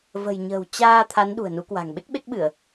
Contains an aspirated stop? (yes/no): yes